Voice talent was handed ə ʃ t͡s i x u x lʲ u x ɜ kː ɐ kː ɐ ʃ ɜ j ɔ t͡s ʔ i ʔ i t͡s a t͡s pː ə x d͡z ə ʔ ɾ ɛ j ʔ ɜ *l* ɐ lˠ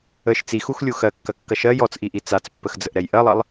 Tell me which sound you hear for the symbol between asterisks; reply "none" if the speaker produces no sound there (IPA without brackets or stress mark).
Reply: lˠ